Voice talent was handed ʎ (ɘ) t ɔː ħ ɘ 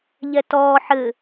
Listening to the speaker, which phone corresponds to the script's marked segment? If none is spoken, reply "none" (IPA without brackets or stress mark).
ɛ